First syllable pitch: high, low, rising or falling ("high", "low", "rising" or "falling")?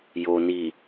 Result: low